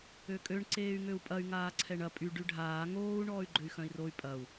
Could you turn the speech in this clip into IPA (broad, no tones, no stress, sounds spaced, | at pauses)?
ø kʼ ø ɳ ǀ eː y̯ ŋ ø u̯ pʼ ɐ y̯ ŋ aː ǀʰ ɛ ɳ ɐ pʼ y ɖ y ɖʱ aː ŋ oː u̯ ɳ ɔː y̯ ɡ͡ǃ ø y̯ x œ̃ i̯ r o y̯ pʼ ɐ u̯